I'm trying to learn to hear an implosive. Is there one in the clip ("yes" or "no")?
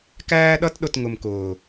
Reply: yes